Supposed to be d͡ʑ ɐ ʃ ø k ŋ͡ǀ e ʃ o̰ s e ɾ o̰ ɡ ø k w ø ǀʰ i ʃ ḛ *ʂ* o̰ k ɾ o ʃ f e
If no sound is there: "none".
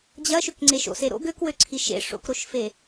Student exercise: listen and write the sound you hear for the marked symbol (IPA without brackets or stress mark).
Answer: ʂ